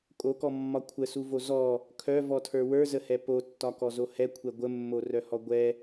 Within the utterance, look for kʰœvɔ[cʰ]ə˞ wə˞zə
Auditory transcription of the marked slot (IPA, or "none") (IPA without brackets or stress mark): tʰ